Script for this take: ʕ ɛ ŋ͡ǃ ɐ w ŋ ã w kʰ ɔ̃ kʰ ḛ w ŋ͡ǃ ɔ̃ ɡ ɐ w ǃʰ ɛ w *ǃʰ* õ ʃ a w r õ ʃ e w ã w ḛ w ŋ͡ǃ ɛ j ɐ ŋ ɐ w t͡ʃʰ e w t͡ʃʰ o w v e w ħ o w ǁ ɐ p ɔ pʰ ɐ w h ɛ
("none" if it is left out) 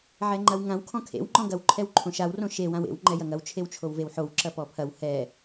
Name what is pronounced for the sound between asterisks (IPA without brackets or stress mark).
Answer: ǃʰ